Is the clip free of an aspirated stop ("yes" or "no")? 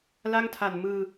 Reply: no